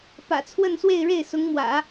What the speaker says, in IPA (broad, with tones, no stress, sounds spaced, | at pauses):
p ä̰˨˩ t͡sʰ w ə˥˧ n s w e˥˧ ɪ̯ ɻ e˥˩ ɪ̯ s ʊ˧˥ ŋ m w ä̰˨˩˦